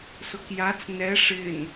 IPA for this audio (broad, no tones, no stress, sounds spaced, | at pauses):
s ʊ k j a t͡s n ɛ ʂ ɪ n